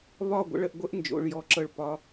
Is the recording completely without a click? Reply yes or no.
no